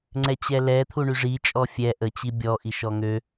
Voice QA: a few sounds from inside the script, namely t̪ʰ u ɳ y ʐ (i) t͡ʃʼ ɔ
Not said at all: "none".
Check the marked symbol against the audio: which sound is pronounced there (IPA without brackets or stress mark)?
i